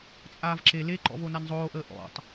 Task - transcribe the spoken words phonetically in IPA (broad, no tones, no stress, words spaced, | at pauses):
t͡sʼaːvǁe leǃɔ̰v onanzˤoːʔəː ʔɔ̰tˤ